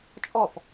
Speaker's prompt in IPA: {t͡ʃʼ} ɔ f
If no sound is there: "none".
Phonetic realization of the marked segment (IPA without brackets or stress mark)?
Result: t͡ʃʼ